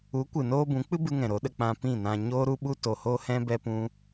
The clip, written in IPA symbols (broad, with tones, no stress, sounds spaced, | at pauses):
u˨˦ kʷ ɨ˨ n oː˧ b ũ˨˦ k͡p ɨ˦ b ɨ˧ ŋ ɛ̃˨ ɾ o˨˦ ɗ ə˧ k͡p ã˧ p ĩ˦˨ n ã˧ ɲ oː˦ ɾ u˦ ɓ u˦ t o˧ h o˦ h ɛ̃˦ b ɛ˦ p ũ˦